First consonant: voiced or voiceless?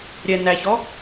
voiced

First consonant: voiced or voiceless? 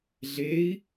voiced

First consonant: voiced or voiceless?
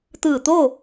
voiceless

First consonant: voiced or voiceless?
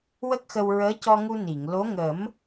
voiced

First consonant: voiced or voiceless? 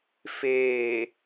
voiceless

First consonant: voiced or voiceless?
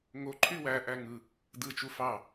voiced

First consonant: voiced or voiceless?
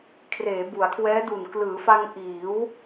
voiceless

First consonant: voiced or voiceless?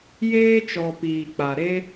voiced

